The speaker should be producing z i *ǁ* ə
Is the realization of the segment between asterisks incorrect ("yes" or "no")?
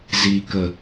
yes